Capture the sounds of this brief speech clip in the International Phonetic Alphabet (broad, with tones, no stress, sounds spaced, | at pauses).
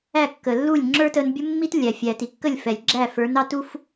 æ˥˩ kː ə˩ lː u˥˩ lʲ ŋ͡ǁ ə˞˥ t ə˧ n bʲ ə˥ mː i˥ t lʲ æ˩ fʲ æ˩ t i˩ kː ə˥˩ lʲ f ɛ˩ lʲ ɡ͡ǁ æ˥˩ f ə˞˩˥ n ɑ˧ t u˥ f